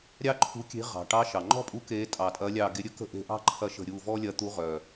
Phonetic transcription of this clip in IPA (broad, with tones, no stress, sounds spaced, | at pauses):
ɾʲ ɑ˥ ǃʰ ṳ˧˥ kʲ e̤˧˥ ʁ ɑ̤˩ ʈ ɑ˧˥ ʃ ɑ˩ ŋ͡ǃ ɔ̤˥ pʼ u˧˥ k e˧˥ tʼ ɑ˩ tʼ ɐ˧˥ lʲ ɑ˦˨ ɡ e˧˥ ɾʲ ɵ˥ k ə̤˥ ʔ e̤˧˥ ʔ ɑ̤˥ ǃʰ ɐ˦˨ ʃ ə̤˦˨ ɾʲ u˦˨ v ɔ˥ lʲ ɐ˧˥ t̪ u˧˥ ʁ œ˩